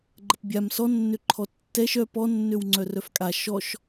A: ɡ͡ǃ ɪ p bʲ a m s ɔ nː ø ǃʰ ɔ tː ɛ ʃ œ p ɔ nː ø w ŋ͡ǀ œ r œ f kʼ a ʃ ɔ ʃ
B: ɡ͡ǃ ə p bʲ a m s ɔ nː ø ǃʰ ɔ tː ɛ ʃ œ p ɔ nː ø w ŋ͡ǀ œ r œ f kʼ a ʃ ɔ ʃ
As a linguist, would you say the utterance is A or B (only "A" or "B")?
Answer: B